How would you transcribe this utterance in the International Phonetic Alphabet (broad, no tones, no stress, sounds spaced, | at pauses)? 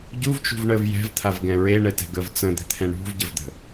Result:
ɟ u v t͡ʃ ṳ v ɳ əː v j ɛ̤ v t̪ʰ a v ɡ ɛ̃ ɹ e ɳ ɛ t ɛ̤ ɡ əː v t͡s ə̃ d̪ ɛ̤ t̪ʰ ɛ̃ ɳ ṳ v ɟ ə v d̪ ə̤